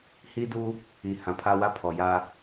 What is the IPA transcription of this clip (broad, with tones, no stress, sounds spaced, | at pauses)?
h i˦ d uː˦ | i˨ h ã˨ pʰ a˦ w a˦ pʰ ɔ˨ j aː˦